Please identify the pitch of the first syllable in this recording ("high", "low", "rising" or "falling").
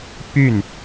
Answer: falling